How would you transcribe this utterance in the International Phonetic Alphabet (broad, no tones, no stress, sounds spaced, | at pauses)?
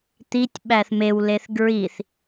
t̪ i tʲ ɓ æ θ m e w l e θ ɡ ɹ i θ